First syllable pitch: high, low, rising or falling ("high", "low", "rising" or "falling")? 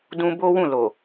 high